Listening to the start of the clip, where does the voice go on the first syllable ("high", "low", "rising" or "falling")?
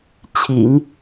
low